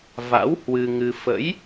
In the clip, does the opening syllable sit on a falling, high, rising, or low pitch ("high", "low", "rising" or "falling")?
rising